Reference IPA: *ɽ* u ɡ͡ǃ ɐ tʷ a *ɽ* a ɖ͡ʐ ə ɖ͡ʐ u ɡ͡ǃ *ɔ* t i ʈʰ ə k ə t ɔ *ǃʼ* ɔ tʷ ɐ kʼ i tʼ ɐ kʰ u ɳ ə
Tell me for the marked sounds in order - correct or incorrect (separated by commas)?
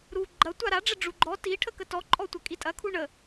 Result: incorrect, incorrect, correct, correct